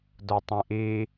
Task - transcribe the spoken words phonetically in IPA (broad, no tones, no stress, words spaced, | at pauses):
dotˤĩʔi